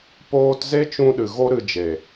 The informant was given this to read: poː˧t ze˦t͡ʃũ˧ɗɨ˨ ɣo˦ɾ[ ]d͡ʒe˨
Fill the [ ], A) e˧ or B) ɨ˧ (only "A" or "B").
B